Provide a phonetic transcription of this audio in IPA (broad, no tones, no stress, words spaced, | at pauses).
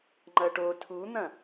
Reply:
ŋ͡ǃɐʈo tʰun̪ɐ̃